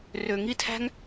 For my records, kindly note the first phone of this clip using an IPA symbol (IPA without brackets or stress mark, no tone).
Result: r